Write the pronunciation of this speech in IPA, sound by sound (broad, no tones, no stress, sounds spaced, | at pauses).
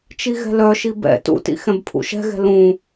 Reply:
t͡ʃ i ɣ ɛ̤ l œ ʃ i b ɛ̰ t ṵ t ḭ x ɛ̃ b pʰ ṵ ʃ ɛ̤ ɣ ɛ̤ l ũ